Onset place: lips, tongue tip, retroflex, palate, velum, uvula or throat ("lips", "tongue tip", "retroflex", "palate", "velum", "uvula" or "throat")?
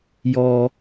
palate